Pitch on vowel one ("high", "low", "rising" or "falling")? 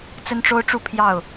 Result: high